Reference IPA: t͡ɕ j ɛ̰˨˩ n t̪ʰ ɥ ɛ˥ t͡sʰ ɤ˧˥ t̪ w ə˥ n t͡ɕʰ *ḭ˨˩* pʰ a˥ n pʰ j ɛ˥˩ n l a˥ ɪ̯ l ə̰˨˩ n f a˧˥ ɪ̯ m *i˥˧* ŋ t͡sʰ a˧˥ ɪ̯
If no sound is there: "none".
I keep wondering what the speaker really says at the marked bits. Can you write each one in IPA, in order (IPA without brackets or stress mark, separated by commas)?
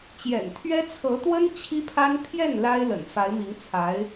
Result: i˥, i˧˥